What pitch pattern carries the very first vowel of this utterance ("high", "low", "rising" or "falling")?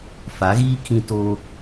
rising